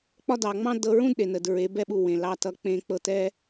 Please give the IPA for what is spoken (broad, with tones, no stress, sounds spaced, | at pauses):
k͡p ɒ˦ d ɑ˨ ŋ͡m ɑ̃˦ d ɤ˧ ɹ ũ˦ d ɗ e˨ n ə˨ d ɹ e˨˦ b ɛ˦ ɓ u˧ w ẽ˨ l ɑ˧ t ʌ˧ k͡p ẽ˧ k͡p ɤ˧ t ɛ˦